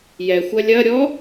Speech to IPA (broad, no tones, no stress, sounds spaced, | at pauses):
j ɛ xʷ ɐ lʲ ɐ ɾʲ ɔ